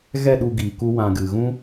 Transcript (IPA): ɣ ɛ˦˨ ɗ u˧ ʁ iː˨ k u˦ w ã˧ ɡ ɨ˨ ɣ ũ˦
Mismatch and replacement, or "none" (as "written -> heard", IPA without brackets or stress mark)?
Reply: ʁ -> ɡ